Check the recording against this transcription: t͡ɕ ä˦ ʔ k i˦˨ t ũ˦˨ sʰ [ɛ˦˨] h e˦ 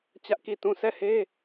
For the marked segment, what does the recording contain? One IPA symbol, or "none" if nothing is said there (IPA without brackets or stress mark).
ɛ˦˨